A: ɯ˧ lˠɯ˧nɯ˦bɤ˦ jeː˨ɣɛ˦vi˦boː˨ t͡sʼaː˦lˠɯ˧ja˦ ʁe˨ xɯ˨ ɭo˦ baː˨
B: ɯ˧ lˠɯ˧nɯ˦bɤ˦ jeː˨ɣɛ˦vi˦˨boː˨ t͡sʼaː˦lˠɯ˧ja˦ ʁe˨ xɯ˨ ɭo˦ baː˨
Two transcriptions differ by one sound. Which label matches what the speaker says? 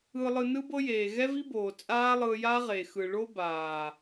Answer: A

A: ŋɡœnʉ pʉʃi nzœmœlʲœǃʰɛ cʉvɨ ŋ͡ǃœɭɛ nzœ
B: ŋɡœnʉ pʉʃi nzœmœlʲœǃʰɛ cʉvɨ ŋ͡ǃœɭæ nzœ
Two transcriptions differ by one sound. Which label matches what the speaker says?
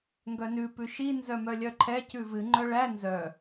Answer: B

